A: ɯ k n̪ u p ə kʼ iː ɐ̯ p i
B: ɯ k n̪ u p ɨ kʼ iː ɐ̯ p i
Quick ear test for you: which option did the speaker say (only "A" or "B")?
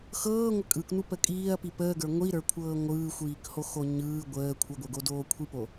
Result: A